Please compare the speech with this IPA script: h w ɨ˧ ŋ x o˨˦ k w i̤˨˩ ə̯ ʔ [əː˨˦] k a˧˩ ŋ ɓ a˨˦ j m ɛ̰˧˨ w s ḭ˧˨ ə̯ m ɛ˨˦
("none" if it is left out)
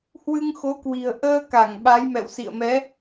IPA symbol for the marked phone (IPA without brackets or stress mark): əː˧